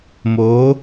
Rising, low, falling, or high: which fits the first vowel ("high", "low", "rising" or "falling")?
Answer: rising